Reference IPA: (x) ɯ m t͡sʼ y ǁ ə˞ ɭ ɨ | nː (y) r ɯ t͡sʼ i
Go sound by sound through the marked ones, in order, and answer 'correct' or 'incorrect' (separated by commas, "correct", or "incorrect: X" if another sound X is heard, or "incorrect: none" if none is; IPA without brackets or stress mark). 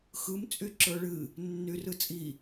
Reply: correct, correct